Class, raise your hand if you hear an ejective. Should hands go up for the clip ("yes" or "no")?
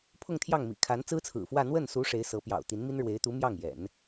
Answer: no